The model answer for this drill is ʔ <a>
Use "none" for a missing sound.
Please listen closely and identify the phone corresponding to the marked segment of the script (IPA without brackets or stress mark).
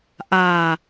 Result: a